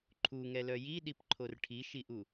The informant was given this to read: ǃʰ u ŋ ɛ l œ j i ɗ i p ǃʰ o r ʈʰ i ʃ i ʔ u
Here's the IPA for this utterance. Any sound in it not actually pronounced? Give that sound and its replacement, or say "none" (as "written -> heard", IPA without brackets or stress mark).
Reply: none